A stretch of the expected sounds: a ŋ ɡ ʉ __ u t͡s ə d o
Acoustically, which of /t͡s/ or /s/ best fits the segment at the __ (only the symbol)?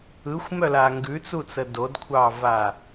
t͡s